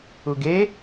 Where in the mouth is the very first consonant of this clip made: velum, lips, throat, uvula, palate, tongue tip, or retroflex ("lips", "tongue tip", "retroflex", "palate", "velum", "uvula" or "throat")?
velum